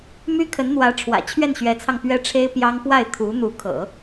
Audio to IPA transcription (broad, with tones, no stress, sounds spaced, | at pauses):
m y˥ kʰ ə˧˥ n n̪ w ä˧˥ ʈ͡ʂʰ w ä̰˨˩ t͡ɕʰ ɥ ɛ˥˩ n ɕ ɥ ɛ˧˥ t͡sʰ ɑ˧ ŋ p ɥ ɛ˥ ʈ͡ʂʰ e˥ ɪ̯ p j ɑ˥ ŋ p w a˥˩ ɪ̯ t̪ʰ u˧˥ n̪ u˧˥ kʰ ɤ̰˨˩˦